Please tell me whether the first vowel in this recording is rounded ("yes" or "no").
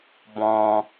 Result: yes